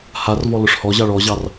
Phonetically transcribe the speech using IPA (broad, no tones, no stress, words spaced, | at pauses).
harvɔlʊʂ hɔʑɑɭ ɔʑɑr